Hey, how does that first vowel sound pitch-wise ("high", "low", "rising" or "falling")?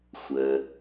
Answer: low